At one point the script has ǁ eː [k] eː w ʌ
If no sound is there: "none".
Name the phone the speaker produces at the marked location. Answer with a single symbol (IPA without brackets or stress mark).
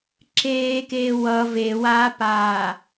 k